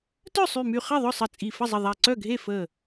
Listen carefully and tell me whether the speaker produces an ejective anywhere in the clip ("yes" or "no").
yes